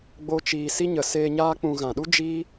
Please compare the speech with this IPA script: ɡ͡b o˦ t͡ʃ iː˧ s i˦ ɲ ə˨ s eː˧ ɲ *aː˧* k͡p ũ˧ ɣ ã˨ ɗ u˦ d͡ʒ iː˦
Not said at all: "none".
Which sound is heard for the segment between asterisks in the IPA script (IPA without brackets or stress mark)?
aː˦